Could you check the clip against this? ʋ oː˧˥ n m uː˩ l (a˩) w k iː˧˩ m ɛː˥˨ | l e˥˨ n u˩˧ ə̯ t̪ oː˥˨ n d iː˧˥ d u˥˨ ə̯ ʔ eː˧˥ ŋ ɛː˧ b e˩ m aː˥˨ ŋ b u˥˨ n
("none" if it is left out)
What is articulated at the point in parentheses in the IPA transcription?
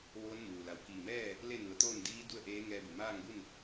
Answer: a˩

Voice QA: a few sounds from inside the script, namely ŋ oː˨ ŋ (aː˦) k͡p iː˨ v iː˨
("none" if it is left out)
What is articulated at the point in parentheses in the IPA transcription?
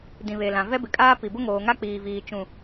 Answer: a˦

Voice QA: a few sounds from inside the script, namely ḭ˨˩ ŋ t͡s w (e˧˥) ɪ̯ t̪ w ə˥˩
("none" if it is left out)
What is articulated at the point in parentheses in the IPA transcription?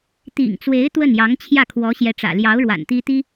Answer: e˧˥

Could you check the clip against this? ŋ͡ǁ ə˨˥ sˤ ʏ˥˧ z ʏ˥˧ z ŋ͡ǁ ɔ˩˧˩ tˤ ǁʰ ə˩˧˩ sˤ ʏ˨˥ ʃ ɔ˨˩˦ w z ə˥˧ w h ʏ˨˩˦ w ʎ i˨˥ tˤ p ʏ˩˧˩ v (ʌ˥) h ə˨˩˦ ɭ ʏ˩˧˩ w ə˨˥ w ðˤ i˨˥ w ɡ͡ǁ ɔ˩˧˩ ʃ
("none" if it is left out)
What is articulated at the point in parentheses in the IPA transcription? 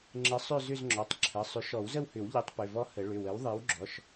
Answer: ɔ˥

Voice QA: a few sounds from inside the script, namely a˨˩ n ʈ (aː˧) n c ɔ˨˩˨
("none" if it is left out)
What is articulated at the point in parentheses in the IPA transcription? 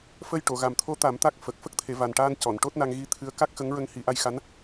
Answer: aː˧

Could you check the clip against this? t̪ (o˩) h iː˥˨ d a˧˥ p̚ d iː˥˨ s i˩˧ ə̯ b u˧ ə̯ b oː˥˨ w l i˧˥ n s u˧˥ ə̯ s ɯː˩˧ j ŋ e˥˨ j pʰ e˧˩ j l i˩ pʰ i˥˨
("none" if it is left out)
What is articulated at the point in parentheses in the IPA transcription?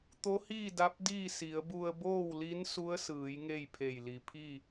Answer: o˧˥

